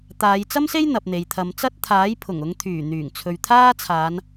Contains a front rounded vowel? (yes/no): yes